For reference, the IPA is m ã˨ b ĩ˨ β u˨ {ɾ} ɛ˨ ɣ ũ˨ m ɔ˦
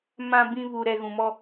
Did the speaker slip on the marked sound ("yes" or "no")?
no